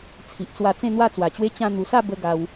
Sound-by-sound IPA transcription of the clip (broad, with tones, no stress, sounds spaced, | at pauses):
t͡sʰ i˨ ʔ t͡s w a˧ t͡s ẽ˥˧ n̪ w a˥˧ t͡s w a˨˩ t͡ɕ w e˦ t͡ɕ ã˧ n̪ u˨˩ s a˥˧ b ə˧ ɡ a˧ w